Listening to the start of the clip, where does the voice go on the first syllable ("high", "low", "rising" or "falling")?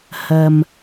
low